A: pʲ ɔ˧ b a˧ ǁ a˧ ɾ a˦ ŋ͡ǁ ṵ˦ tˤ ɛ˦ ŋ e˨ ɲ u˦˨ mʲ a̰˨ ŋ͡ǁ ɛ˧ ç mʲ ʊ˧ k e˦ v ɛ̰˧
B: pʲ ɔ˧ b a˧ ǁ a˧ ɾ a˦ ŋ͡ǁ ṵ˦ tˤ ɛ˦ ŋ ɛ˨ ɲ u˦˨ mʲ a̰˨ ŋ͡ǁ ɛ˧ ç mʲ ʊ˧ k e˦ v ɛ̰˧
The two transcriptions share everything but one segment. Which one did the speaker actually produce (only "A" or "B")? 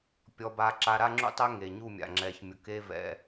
A